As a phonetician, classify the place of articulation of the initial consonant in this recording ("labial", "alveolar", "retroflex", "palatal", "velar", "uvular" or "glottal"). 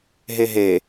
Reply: glottal